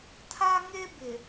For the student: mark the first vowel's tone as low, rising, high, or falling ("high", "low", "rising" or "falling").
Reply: high